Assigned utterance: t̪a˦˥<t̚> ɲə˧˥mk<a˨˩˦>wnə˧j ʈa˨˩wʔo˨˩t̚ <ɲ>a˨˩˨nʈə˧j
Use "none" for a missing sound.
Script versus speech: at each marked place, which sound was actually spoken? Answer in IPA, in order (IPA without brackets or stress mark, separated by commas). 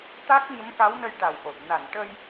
k̚, a˧˥, n